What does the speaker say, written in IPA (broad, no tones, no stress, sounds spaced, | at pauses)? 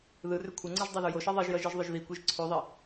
ð ɯ r ʏ kʷʰ ʌ ŋ͡ǀ ɯ ʒ dˤ a ð o j o ʃ ɛ ðˤ i ʒ j ʌ ʒ ɯ ʒ ðˤ ʏ ʒ ð i kʷ e ʒ ǀʰ ʉ ðˤ i